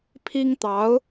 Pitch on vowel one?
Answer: high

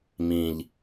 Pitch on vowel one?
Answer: low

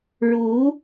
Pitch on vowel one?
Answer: rising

